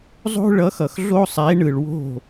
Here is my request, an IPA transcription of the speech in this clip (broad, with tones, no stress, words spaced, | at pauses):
zˤo̤˥ ɭʌ˨˥xʌ˩x ɮo˥sˤe˨˥ɳɯ˩ɭ wo̤˥˩